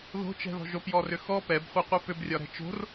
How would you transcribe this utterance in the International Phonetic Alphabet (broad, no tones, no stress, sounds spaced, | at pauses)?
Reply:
ð o̤ t͡ʃ ɛ̤ ð ɔ̤ ʒ o p j ɔ r ʏ x ɔ p ɛ b χʷ ɛ qʷ ɛ p ʏ b rʲ ɒ ɾ ɛ̤ t͡ʃ o̤ r